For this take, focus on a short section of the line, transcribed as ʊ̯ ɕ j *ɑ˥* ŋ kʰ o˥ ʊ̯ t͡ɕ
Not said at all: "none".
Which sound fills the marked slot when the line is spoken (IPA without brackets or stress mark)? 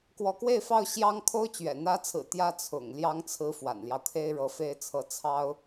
ɑ˥